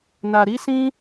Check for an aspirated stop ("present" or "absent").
absent